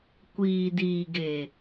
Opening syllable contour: low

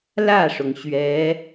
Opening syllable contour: falling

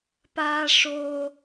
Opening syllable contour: high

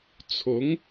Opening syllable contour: rising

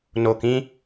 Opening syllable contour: low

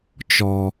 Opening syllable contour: low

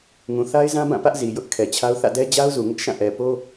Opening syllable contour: low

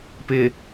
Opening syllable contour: low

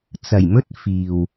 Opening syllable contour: low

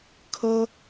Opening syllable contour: high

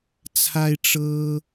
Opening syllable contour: high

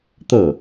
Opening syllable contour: falling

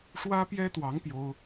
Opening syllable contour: high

